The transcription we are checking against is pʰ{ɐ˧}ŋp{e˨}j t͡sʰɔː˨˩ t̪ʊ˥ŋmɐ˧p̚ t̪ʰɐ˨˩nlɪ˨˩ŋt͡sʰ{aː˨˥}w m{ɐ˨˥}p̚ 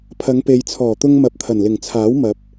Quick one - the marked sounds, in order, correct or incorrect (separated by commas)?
incorrect, correct, correct, correct